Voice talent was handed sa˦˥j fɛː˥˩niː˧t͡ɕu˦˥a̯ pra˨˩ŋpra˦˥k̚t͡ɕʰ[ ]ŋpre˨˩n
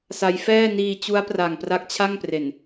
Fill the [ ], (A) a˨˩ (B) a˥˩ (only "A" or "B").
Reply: B